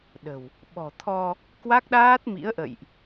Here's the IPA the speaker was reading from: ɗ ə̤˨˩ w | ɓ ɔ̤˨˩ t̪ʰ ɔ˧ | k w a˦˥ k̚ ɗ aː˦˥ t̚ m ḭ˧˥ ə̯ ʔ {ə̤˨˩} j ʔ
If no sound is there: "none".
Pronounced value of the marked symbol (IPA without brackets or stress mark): ə̰˧˨